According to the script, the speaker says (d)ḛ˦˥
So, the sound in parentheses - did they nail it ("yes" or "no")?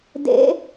yes